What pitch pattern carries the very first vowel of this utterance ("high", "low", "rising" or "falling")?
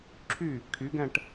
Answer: falling